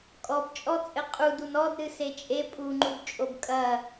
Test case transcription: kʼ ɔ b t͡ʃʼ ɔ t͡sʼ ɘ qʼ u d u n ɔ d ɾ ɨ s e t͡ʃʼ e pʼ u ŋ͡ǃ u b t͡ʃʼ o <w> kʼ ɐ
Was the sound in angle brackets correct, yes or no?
no